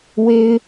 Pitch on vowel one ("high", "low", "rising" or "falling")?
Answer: high